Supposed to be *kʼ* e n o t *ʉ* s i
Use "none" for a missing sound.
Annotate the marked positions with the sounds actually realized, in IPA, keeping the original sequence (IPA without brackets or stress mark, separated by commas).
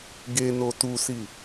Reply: ɡ, u